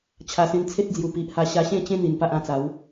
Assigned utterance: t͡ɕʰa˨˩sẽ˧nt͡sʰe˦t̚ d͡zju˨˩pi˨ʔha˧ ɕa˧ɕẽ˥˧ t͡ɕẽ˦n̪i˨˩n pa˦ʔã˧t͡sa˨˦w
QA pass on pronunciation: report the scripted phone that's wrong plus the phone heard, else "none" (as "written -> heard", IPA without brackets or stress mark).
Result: none